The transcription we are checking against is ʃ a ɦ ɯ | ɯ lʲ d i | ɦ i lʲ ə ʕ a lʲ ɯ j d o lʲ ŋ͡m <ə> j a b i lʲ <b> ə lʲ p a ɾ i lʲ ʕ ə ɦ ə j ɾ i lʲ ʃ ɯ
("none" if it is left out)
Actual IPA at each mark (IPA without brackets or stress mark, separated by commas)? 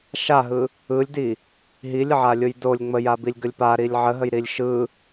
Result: ə, ɡ